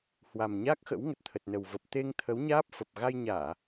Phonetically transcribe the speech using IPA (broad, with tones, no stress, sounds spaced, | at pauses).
h w a˨˩ m ɲ a˦˥ k̚ x ə̰˧˥ w ŋ ə˨˩ t̚ t̪ʰ ə˨˩ t̚ n ə˨˩ w v ə˨˩ p̚ t̪ e˧ ŋ t̪ʰ ə˨˦ w ɲ aː˦˥ p̚ f ə˨˩ p̚ ɣ a˧ j ɲ aː˧˩˨